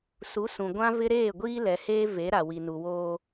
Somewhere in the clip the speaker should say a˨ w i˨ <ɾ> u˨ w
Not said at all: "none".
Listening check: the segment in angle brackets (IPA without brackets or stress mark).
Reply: n